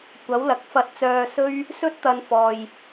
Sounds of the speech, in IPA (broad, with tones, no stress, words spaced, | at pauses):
kʷɐ˨˥wlɐ˨˥k̚fɐ˧t̚t͡sœː˧ sɵ˥ɥ | sɵ˥t̚t̪ɐ˧n fɔː˨j